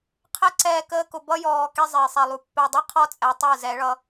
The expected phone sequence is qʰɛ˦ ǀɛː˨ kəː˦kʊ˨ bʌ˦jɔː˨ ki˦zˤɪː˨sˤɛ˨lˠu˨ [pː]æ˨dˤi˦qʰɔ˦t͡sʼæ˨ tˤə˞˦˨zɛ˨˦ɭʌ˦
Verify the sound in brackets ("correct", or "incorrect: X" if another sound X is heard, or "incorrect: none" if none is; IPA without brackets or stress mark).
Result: correct